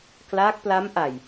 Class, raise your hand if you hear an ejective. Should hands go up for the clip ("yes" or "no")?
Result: no